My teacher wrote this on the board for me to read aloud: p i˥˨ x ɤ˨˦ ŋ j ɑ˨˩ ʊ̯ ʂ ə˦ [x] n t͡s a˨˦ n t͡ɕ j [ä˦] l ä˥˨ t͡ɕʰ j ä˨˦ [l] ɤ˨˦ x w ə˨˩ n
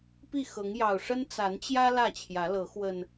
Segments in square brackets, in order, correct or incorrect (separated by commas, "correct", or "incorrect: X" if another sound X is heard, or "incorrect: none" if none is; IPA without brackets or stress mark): incorrect: none, correct, correct